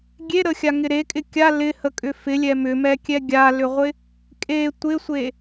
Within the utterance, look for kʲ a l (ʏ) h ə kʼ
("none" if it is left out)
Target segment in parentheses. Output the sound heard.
ɪ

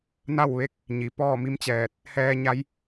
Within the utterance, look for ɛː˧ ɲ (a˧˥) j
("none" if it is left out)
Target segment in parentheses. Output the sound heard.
a˧˥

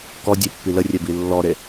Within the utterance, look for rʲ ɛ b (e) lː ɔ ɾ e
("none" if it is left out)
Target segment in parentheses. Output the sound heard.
i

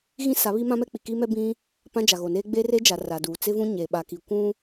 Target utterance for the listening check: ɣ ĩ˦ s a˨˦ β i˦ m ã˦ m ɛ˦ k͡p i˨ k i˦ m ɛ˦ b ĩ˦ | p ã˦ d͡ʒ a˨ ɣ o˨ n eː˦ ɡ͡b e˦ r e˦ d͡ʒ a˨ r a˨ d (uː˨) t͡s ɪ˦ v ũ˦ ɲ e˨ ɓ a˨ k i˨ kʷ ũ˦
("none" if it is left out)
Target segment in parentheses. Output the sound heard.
uː˨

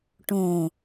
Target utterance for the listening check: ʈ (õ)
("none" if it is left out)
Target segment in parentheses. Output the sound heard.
õ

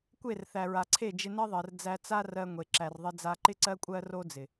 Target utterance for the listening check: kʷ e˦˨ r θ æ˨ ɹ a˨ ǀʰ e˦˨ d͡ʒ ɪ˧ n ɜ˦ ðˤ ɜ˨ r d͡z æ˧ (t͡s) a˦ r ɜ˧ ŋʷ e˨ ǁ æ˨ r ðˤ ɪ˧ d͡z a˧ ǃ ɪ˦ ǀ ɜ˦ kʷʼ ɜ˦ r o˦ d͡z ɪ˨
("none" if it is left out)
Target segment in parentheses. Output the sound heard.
t͡s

